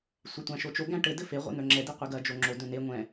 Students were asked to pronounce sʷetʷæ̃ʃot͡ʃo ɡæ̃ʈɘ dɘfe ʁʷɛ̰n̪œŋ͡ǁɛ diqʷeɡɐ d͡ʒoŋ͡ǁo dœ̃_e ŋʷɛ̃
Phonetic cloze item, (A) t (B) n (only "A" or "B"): B